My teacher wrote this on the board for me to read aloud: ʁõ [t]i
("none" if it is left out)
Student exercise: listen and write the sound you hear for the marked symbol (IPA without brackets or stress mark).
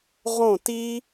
t